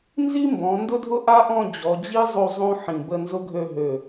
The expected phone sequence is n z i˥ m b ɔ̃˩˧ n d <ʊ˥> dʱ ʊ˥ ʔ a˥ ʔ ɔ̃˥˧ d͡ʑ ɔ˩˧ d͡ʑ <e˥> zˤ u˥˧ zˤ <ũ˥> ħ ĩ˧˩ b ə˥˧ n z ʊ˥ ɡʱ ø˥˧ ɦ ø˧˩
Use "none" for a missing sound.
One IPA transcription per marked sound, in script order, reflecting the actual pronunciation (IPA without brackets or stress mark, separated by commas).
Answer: ʊ˥, i˥, ũ˥